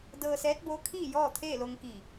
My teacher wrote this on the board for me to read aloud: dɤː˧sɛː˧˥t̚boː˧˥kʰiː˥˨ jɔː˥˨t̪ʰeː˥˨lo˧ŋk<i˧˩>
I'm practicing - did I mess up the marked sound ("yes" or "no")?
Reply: no